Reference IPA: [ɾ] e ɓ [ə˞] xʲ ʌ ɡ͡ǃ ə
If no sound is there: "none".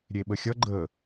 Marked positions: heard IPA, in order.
ɾʲ, ə

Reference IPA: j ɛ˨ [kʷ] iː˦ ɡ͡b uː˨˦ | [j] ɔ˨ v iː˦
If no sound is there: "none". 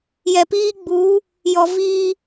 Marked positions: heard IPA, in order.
p, j

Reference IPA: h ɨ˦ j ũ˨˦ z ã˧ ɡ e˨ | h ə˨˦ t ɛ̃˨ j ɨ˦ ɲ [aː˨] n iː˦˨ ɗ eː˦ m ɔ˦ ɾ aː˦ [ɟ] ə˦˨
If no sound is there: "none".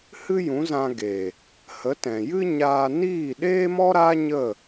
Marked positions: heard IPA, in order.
aː˧, ɲ

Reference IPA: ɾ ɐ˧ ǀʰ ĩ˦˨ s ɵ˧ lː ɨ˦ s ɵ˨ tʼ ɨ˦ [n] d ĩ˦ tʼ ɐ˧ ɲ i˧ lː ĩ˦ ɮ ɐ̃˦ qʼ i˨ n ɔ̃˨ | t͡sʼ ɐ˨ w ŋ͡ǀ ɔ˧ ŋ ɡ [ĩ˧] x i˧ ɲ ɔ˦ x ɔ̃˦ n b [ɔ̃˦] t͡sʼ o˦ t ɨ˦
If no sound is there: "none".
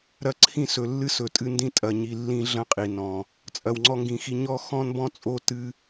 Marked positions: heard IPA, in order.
n, ĩ˨, ɔ̃˦

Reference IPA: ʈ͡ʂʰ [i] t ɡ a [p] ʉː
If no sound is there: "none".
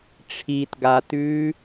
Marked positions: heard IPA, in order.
i, t

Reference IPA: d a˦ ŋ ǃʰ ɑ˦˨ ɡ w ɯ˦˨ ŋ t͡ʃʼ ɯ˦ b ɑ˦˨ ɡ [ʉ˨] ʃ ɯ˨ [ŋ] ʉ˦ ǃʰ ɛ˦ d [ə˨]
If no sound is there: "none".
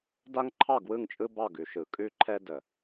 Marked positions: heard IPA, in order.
ʉ˨, kʼ, ə˨

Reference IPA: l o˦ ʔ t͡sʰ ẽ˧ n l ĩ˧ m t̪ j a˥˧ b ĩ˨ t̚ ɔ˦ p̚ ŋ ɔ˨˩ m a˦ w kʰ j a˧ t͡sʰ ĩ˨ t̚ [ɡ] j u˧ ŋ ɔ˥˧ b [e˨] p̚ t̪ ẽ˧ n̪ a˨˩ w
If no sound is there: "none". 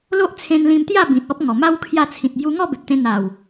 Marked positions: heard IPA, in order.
b, e˨

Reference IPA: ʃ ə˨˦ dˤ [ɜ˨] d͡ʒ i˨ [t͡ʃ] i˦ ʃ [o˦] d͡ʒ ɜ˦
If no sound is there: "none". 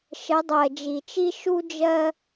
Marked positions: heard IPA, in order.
ɜ˨, t͡ʃ, u˦

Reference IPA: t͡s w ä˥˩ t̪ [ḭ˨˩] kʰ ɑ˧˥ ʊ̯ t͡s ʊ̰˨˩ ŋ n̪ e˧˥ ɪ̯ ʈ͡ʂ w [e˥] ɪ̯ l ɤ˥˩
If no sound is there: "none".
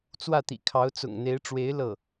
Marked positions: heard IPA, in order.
ḭ˨˩, e˧˥

